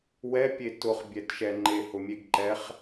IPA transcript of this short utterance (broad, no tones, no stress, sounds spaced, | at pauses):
w ɛ pʲ e t ʊ χ bʲ ɛ t ʃ ɛ ŋ͡ǃ e h ʊ mʲ e ɡ ǃ ɛ χ